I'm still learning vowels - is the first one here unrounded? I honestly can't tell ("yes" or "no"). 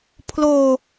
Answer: no